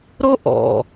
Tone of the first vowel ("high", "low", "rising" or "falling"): high